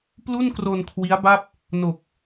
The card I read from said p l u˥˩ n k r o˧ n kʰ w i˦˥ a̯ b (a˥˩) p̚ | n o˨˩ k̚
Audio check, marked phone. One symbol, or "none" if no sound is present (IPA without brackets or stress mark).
a˥˩